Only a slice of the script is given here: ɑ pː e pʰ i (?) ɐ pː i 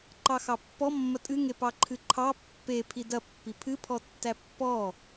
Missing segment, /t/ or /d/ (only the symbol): d